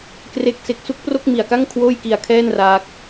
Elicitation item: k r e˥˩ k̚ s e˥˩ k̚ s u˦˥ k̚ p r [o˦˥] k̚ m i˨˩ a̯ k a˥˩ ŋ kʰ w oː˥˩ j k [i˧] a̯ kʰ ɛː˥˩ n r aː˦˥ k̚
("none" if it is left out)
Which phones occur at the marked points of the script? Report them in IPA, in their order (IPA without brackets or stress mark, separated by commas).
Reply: o˥˩, i˧